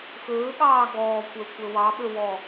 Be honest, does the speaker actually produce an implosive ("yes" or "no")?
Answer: yes